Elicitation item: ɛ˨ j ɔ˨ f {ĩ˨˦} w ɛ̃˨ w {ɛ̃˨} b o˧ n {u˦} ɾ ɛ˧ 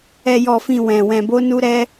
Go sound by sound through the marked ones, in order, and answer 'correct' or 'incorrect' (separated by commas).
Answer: incorrect, correct, incorrect